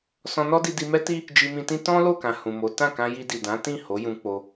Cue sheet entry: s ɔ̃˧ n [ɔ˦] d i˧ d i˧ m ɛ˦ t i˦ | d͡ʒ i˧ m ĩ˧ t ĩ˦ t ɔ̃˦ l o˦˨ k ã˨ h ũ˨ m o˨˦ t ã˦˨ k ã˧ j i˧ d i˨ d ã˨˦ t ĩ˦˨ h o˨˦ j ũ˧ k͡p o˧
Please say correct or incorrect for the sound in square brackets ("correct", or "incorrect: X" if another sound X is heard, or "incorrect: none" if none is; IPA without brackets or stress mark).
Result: correct